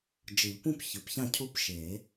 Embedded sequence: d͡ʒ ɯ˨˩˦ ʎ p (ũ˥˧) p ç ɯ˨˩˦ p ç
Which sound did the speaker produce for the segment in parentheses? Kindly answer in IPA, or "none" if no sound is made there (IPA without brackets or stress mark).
ũ˥˧